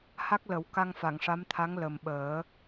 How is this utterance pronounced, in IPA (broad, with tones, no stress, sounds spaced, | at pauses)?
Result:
h a˦˥ k̚ l ə˨˩˦ w k a˧ ŋ f a˨˩˨ ŋ ʂ a˧˥ m t̪ʰ a˧˥ ŋ l ə˨˩ m ɓ əː˨˩˦